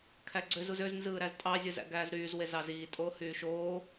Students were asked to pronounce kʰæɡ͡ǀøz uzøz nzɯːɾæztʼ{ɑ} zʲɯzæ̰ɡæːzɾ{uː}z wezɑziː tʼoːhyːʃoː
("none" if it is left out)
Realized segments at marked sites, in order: ɑ, yː

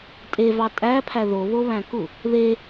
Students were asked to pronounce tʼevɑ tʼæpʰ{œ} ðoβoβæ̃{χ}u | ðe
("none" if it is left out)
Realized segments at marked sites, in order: æ, k

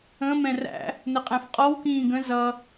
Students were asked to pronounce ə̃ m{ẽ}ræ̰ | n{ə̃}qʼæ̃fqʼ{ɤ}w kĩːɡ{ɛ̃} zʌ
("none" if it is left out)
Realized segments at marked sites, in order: ɛ̃, ə, ɔ, ə̃

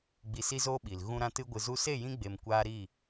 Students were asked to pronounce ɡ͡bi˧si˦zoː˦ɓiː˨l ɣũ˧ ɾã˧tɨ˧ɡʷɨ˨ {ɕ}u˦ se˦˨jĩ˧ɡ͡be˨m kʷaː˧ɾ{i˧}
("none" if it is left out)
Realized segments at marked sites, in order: z, i˦˨

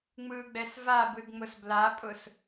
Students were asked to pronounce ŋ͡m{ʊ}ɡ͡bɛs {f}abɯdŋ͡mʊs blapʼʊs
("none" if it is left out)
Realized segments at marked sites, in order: ɯ, v

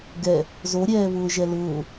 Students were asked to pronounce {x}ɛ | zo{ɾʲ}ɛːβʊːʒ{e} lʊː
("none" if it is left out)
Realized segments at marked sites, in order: ɡ, ɾʲ, ɛ

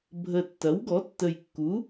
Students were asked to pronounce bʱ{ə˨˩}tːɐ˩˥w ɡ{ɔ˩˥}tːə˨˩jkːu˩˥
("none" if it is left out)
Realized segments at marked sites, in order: ə˨˩, ɔ˩˥

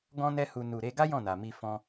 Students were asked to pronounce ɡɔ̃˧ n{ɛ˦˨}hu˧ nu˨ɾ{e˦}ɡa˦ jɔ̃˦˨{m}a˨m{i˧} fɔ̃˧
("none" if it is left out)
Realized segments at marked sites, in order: ɛ˦, e˧, n, i˧

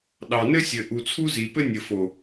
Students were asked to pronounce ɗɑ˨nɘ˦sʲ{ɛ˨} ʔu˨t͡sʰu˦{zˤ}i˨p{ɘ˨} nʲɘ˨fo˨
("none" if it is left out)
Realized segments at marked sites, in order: ɘ˨, z, ɘ˦

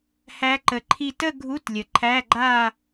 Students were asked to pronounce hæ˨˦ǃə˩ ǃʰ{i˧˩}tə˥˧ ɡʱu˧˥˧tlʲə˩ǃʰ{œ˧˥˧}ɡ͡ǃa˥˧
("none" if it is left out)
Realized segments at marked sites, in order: i˧˩, æ˧˥˧

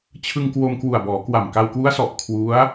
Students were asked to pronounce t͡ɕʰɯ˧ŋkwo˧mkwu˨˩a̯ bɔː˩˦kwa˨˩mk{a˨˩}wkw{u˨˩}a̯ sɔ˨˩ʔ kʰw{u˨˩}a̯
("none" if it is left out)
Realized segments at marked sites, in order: a˧, u˦˥, u˦˥

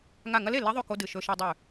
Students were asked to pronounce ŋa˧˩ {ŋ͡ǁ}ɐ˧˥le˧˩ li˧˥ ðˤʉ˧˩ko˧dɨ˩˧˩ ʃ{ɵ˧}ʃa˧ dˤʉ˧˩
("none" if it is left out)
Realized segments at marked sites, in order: ŋ, ɵ˧

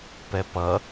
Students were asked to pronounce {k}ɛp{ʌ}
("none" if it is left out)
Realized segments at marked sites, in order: p, ʌ

